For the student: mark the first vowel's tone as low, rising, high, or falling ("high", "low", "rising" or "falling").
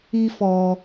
high